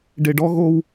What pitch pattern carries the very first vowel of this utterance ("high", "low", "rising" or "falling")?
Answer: low